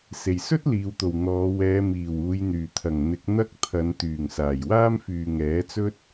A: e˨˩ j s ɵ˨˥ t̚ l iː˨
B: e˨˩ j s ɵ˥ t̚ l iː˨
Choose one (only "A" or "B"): B